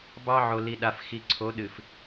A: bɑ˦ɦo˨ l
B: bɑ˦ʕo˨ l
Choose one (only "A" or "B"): B